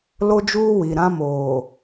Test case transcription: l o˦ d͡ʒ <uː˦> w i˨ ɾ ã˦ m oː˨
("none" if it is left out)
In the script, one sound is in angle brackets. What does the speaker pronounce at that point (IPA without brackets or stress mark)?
uː˦